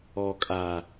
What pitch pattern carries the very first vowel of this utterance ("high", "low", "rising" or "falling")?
low